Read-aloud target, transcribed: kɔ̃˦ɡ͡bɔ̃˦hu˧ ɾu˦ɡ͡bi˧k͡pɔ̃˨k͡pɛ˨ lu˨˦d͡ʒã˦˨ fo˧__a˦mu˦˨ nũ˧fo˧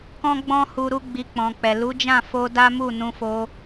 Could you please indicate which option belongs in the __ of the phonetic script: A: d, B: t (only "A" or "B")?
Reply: A